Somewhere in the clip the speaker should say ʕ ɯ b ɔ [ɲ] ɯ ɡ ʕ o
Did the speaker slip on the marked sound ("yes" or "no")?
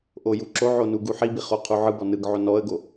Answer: yes